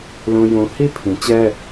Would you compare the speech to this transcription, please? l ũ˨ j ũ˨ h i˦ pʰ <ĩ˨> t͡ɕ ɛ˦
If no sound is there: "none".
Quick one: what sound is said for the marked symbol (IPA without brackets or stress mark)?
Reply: ĩ˨